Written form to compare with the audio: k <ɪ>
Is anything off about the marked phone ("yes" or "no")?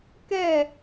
yes